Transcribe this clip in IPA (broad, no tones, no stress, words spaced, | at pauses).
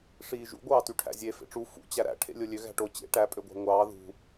ʂiːʒṵ ɡʷɑːtyʈʰæ̰zʲe fḛʈ͡ʂu fṵ t͡ɕæɾæ̰ ʈʰḛlʲolʲø ɣæ̤ʈo t͡ɕḛ ʈæ pʼøɡʷæ̤ŋʷɑː ðṳ